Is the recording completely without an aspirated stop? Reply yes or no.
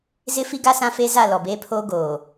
no